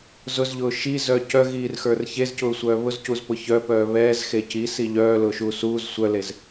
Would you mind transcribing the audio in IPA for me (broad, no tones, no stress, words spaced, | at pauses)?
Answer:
zʊzʎʊː ʃizœ cœɣiːrxə˞r çezcʊːsʷœː βʊzcuzpʊ çœpœː βɛːzxe cisi ʎœːlʊːʃuː suːz sʷœlez